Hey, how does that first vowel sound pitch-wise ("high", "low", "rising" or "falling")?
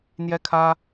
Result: high